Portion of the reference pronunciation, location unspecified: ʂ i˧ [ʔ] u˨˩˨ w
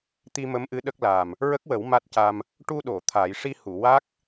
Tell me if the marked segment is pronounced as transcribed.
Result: no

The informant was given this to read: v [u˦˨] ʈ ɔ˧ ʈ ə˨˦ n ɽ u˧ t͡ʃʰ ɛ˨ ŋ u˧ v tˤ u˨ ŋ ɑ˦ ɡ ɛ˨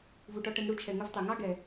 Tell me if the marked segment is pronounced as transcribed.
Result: no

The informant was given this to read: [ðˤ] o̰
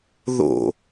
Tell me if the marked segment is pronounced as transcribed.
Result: no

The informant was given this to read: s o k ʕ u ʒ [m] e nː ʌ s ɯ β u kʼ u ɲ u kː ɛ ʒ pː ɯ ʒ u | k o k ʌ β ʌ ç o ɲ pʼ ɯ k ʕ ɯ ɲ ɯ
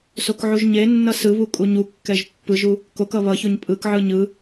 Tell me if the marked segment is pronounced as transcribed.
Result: no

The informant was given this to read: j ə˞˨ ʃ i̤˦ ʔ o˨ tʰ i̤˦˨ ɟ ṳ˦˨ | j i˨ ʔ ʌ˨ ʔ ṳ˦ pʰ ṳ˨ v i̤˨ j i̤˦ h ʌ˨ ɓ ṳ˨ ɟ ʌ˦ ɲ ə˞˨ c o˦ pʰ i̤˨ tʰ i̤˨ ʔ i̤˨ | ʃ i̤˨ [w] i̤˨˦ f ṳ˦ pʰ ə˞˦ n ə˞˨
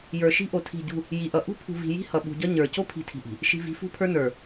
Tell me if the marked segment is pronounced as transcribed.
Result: no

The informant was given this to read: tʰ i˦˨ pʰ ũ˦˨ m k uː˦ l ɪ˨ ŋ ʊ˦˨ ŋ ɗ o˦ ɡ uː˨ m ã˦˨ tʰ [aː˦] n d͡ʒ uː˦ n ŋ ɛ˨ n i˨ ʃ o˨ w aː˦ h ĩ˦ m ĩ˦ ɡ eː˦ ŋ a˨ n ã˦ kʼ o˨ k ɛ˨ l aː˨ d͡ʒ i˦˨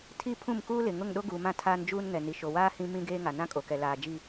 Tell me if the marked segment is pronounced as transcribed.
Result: yes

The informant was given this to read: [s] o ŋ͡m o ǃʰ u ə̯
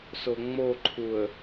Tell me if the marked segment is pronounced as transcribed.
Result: yes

